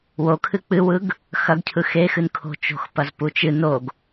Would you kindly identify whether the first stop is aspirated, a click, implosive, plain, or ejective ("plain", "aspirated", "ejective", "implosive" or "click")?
aspirated